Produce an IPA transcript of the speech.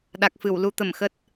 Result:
ɗ a˨˩ k̚ f ɨ˧˩ w l u˧ t̪ ə˧˩ m x ə˦˥ t̚

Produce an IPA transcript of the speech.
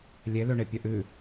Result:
lʲ e l ø ɳ e pʲ œ ʔ ʉ

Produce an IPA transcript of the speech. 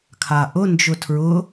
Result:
kʰ a ʔ ʊ n d͡ʒ ʊ tʰ ɹ ʊ

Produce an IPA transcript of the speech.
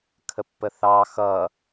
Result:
kʰ ə pː ə θ ɑ x ʌ

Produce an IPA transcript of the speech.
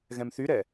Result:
ɣ ɛ̃ m θ y ɾ ɛ

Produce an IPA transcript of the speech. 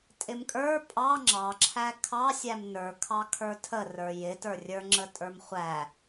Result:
tʼ ɪ m kʼ ə˞ pʼ ɑ ŋ͡ǁ ɑ ǁʰ æ kʰ ɑ sʲ æ m n ə˞ kʰ ɑ kʰ ə˞ tʰ ə r ə˞ j ɪ t ə˞ rʲ ə˞ ŋ͡ǁ ə tʼ ə˞ m χʷ æ

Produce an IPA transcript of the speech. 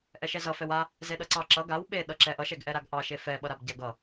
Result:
ʔ ɛ ʃ ɛ z ʌ f ɛ w a | z e ɗ ʌ ǀ ɑ ǁ ʌ ɡ a w ɓ e ɗ ʌ ǁ ɛ ʔ ʌ ʃ ɛ ɡ ʔ ɛ ɾ a ɡ ʔ ɑ ʃ e f ɛ ɓ ʌ ɾ a b ɟ a ɡ ʌ

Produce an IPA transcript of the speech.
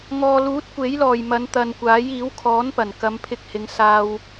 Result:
ŋ ɔː˨ l uː˨˥ t̚ kʷ e˨˥ j l ɔː˨˩ j m ɐ˨˧ n t̪ ɐ˨ n kʷ aː˨˥ j iː˨˥ w kʰ ɔː˨˥ n p ɐ˨˩ n k ɐ˨˧ m pʰ ɪ˧ k̚ h ɪ˨˧ ŋ s aː˥ w

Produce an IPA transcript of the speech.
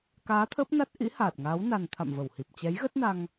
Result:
k aː˨˦ t̪ʰ əː˦˥ p̚ n a˦˥ t̚ ʔ ḭ˧˥ h aː˨˩ t̚ ŋ aː˨˦ w n a˨˩ n t̪ʰ a̰˧˨ m v ə˧˩ w h i˨˩ p̚ t͡ɕ ɛ˨˦ j ɣ ə˦˥ t̚ n a˧ ŋ

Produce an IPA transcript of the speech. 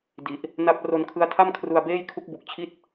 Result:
d i˨˩ ʔ | n a˦˥ p̚ r o˧ n kʰ ɯ˦˥ a̯ tʰ a˥˩ m kʰ r u˧ a̯ b eː˥˩ j kʰ u˦˥ k̚ b u˨˩ k̚ t͡ɕʰ i˥˩ t̚

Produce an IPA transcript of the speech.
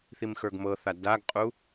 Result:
θ i m x ə˞ ɡ m ɤ θ a d a ɡ qʼ u

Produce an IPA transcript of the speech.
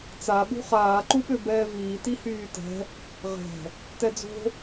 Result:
t͡s a ɓ ṳ χ aː ǃ u ɓ ø b ɛː v iː t i h yː t ɛ̤ | ʁ ɛ̤ | t ɛ d͡z o̤

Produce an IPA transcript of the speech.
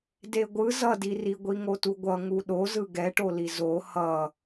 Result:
d e ɡʷ ɯ z ʌ d i r i ɡʷ i ŋ o t u ɡʷ ʌ ŋ u ɗ o z ɯ ɡ ɛ ʈ o l i z o h ʌ

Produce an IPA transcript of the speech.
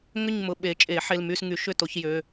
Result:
ŋ ʏ˥˨ ɲ m ʊ˩˧˩ ɓ e˨˩˦ t͡ʃʼ e˨˩˦ ħ e˩˧˩ l m y˥˨ s ŋ y˨˩˦ ʃ ʏ˥˨ t o˨˩˦ ç j ø˩˧˩

